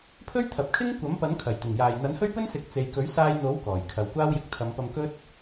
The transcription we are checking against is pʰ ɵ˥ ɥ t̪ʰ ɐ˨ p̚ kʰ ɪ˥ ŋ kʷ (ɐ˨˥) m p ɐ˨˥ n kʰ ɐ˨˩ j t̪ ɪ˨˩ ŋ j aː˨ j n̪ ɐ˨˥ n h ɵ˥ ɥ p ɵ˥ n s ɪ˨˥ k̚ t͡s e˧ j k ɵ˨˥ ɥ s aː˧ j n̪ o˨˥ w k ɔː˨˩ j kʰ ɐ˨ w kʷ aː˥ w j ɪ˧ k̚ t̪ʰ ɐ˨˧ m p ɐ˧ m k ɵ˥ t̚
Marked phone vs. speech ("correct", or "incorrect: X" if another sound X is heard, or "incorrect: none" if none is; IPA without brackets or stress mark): correct